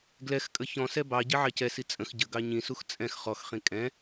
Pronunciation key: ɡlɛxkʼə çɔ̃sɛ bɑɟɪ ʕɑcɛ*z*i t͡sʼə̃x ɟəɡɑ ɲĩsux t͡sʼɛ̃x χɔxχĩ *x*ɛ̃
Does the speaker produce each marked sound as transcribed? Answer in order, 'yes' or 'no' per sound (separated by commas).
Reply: no, no